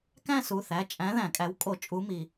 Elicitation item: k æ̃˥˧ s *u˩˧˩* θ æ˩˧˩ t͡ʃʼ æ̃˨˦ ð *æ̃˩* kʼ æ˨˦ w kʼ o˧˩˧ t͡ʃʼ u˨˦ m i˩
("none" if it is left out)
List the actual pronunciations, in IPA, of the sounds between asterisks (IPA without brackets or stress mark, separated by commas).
u˩˧˩, æ̃˧˩˧